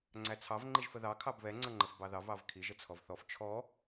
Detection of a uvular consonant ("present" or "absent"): absent